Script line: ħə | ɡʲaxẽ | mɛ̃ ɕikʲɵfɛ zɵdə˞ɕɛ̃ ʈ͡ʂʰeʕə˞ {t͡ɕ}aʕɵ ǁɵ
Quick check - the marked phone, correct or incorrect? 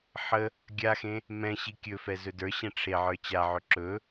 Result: correct